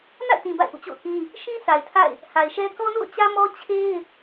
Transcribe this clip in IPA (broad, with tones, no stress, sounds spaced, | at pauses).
n a̰˦˨ ɪ̯ t ĩ˨ b a̰˦˨ ɪ̯ ʔ ṵ˦˨ t͡ɕ o̰˦˨ ʊ̯ k ĩ˦ | ʃ ĩ˦ s a˨ ɪ̯ tʰ a̰˦˨ ɪ̯ | h a˨ ɪ̯ ʃ ɛ˦ k ɔ˦ n o̰˦˨ ʊ̯ t͡ɕ ä˦ m ɔ˦ t͡ɕʰ e˦ ɪ̯